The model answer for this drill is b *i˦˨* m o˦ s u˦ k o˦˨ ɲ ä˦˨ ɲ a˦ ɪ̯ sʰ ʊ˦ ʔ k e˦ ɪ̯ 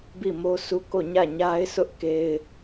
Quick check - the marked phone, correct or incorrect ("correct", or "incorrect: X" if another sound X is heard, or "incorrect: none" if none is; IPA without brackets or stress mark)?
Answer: correct